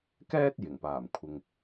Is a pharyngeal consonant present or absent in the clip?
absent